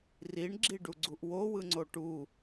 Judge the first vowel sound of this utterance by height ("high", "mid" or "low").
high